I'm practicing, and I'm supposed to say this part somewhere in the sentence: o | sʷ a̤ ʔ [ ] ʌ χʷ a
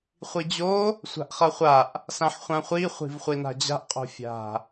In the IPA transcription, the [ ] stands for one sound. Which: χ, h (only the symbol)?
χ